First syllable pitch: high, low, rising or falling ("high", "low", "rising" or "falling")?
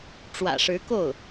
low